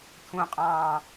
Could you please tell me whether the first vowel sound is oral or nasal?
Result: nasal